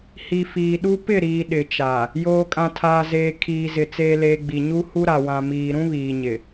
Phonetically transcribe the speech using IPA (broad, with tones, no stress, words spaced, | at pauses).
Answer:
hi˨ fiː˨ɗu˦ pɪ˦˨ɾiː˨ ɗɪ˨t͡ʃa˨ | joː˨kʼã˨tʰaː˨zeː˨ kʰiː˨zɪ˨ t͡seː˨leː˨ ɡ͡bi˨ɲu˦hu˦ ɾa˨wã˨miː˨ ɾũ˦βiː˨ɲɪ˨